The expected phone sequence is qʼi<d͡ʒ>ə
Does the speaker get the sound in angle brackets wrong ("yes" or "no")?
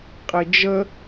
no